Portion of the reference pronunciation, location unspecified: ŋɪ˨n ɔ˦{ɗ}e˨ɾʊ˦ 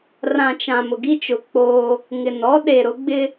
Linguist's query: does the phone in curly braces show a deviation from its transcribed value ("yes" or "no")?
no